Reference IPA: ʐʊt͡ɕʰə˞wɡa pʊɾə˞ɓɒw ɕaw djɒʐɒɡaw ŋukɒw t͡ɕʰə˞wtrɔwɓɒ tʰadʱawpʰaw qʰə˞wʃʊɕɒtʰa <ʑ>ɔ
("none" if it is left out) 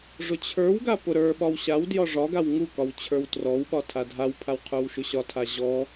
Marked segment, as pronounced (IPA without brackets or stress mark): ʑ